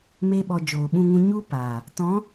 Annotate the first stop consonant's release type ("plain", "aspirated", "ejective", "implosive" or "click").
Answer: implosive